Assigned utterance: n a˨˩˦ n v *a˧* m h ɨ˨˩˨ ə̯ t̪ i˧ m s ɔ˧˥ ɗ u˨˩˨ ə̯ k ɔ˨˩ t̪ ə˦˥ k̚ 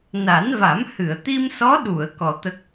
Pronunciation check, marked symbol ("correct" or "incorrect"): incorrect